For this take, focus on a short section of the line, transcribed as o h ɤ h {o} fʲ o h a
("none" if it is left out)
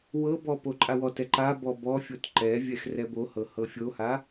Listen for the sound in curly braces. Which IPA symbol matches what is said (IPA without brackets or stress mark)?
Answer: ɤ